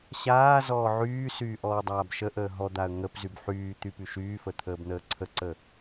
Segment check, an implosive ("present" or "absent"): absent